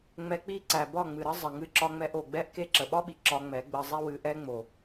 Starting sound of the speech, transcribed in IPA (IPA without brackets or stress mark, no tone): ŋ͡m